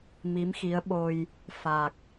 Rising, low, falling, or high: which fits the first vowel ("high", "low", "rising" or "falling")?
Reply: rising